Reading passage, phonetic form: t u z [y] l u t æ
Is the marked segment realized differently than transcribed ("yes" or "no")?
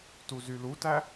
no